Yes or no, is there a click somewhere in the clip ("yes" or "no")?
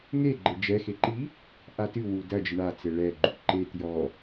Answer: yes